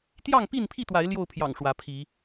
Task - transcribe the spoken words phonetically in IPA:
t̪jɑ˥˨ŋpi˥˨npʰi˥˨t̪wa˨˦ɪ̯ ljo˥˨ʊ̯pʰjɑ̰˨˩ŋ ʂwä˨˦pʰi˨˦

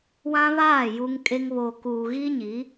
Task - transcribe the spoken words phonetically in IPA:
wã˦βaː˦˨ ju˦ŋkʼe˦ŋ βoː˨kuː˨ɣi˦ɲi˨˦

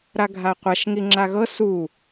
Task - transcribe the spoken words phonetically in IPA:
ɾaɡʱaqʷaʃ ŋiŋ͡ǁaɣɤ su

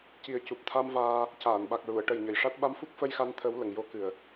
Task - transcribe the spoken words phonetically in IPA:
ci˨˩ə̯ cu˨˩p̚t̪ʰa˧m vaː˧ | caː˨˩˨nɓa˨˩k̚ɹu˨˩˨ə̯ ʈə˨˩jɲə˨˩j ʂa˦˥t̚ɓa˧˥mfu˦˥k̚ fə˧jxa˧nt̪ʰə˨˩˦w lə˨˩˨ŋ jo˧kɨ˨˩ə̯

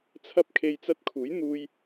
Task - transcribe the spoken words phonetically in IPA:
t͡sʰɐ˧p̚kʰe˨j t͡sɐ˧t̚kʰuː˨˥jn̪uː˧j

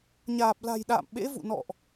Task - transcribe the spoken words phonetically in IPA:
ɲaː˨˩p̚la̤˨˩jɗa̰ː˧˨m ɓḛ˧˥vṵ˧˨nɔ̰˧˨ʔ

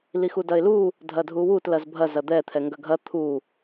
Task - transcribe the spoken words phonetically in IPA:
lixudɐɪ̯lu | dʱɐdʱuwut lɐzbʱɐ zɐd̪ɛ t̪ʰɛŋɡɐɡʱɐ t̪ʰu

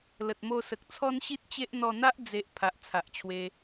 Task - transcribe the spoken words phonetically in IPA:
lə˨t̚mo˧sə˨k̚ t͡sʰɔ˦nɕi˦t̚t͡ɕe˦ʔ n̪ɔ˧n̪a˦ʔ d͡ze˨ʔ pʰa˨ʔt͡sʰa˨ʔt͡ɕʰwe˧

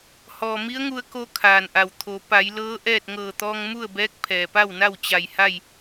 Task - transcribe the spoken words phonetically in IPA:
hɔː˩mi˧˥ə̯ŋu˧ə̯ko˧ kʰaː˩nʔa˩wt̪ʰo˩˧ pa˩˧jlɤː˧˥ ʔɛː˥˨t̚ ŋɤː˧˩t̪ɔː˧ŋ mu˥˨ə̯bɛː˧˥k̚ pʰɛː˩pa˥˨wna˥˨w t͡ɕa˧˩jha˥˨j

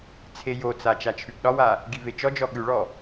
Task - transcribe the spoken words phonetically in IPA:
t͡sʰejot͡sa t͡ʃat͡ʃʰʉɡɗɒwa | ɡivet͡ʃɔd͡ʒɔ ɠʉɭɔ

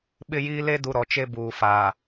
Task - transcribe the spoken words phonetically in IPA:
ɓɪ˦jiː˦ le˦du˨ ɾɔ˨t͡ʃe˦buː˨ faː˨

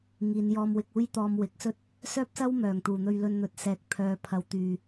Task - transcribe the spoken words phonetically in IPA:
ŋiː˨˧njɔː˧mwɪ˧k̚ uː˥jt̪ɔː˧m wɪ˨˥k̚sɵ˥t̚ | sœː˥p̚sɐ˥w mœː˨˩ŋ t̪uː˨n̪ɵ˧ɥ lɵ˧n n̪ɵ˨t̚sɛː˨k̚ pʰœː˨˧pʰɐ˨˧w t̪yː˨

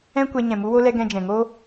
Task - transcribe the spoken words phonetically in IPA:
ɛ̃˦kʷɛ˧ ɲɛ̃˨mu˧wo˧lɛ˧ ɡɛ̃˧d͡ʒɛ̃˨ŋo˦

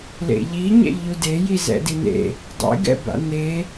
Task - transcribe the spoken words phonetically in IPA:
lḛʎiɲɛ̰ ʎudeji zɛ̰din̪ḛ | dˤḛɡɛ̰ba̰ n̪e

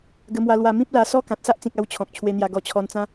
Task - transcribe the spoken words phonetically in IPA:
ɡə˧mwa˧lwa˧ mĩ˦p̚la˧ sɔ˦ kã˨t̚sa˦ʔt͡sĩ˨k̚a˧w t͡ɕʰɔ̃˨k̚ t͡ɕʰwe˧n̪ja˧ɡɔ˧ t͡ɕʰɔ˧nt͡sã˦

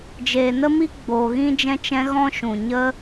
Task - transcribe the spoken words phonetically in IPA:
d͡ʒeː˨nə˦mi˦ ɡ͡boː˨ɣĩ˦d͡ʒɛ̃˦t͡ʃɛ̃˦ ɣɔ̃˦ʃũ˨ ɲə˦

